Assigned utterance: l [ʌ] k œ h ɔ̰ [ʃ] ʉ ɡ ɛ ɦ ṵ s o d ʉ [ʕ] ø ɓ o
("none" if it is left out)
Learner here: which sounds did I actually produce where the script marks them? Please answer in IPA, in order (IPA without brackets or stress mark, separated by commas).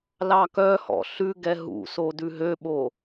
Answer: ɑ, ɬ, ɦ